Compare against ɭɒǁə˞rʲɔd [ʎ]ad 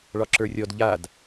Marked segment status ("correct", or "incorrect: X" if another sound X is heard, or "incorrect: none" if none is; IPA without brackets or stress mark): correct